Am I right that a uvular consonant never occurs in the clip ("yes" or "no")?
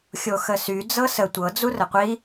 no